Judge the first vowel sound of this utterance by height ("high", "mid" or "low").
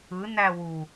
high